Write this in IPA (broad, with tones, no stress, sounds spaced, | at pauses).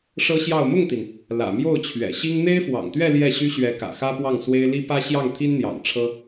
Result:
ʂ ɤ˥ ɕ j ɑ˥˧ ʊ̯ m ʊ˥˩ ŋ t̪ i˩ n | l ä̰˨˩ m j o˥˩ ʊ̯ t͡ɕʰ ɥ ɛ̰˨˩ ɕ i˥ ŋ n̪ e˥ ɪ̯ f w ɑ̰˨˩ ŋ t̪ ɥ ɛ˥˧ l j ɛ˥˩ ɕ y˥ ɕ ɥ ɛ˧˥ k ä̰˨˩ x ä˥ p w ɑ˥˩ ŋ s w e˥ ɪ̯ l i˥ p ä˥ ɕ j ɑ˥˩ ŋ t̪ʰ i˥ n n̪ j ɑ̰˨˩ ŋ ʈ͡ʂʰ ɤ˥